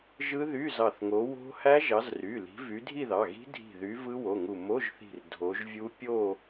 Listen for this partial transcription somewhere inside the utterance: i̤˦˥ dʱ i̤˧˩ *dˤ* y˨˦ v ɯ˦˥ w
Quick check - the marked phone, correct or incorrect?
incorrect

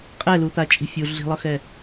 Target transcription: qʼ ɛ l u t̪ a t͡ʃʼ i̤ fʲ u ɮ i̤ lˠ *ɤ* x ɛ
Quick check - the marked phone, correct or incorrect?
correct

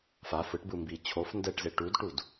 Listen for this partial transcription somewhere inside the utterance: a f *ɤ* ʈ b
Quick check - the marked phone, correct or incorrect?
incorrect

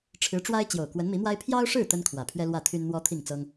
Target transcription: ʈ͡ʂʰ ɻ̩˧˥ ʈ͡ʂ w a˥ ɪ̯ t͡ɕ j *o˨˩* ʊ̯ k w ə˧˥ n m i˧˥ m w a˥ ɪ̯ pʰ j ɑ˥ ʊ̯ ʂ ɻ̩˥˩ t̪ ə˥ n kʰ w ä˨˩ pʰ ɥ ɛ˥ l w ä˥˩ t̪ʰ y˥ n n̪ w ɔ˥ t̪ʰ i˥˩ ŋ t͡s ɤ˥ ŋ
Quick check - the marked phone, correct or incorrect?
correct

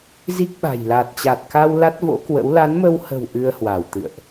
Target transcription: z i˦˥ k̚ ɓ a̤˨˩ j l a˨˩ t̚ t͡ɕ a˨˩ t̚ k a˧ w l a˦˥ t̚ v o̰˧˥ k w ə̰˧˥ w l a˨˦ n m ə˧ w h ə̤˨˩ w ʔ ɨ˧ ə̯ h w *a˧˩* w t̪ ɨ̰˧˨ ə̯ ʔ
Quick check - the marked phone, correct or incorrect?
correct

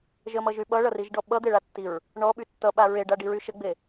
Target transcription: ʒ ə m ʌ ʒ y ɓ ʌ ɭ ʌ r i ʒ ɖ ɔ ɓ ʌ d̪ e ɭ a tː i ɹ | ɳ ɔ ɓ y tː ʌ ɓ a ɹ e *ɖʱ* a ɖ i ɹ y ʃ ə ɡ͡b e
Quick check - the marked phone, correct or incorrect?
incorrect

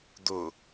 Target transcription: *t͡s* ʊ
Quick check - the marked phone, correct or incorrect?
incorrect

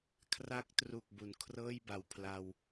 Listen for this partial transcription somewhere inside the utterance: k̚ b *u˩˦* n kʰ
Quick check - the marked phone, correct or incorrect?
correct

